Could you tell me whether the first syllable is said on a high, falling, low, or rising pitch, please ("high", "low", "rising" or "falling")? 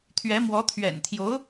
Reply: rising